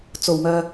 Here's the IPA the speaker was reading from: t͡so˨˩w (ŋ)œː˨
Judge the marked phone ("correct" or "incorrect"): correct